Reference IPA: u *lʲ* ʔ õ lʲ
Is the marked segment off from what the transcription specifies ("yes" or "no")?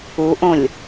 yes